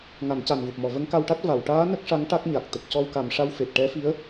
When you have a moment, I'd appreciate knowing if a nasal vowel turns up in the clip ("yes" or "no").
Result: no